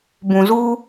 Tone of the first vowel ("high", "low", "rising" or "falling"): low